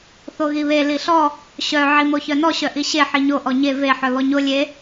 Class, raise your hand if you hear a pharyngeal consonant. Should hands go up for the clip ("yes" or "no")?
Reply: yes